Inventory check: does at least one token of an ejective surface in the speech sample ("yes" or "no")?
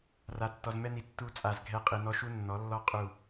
yes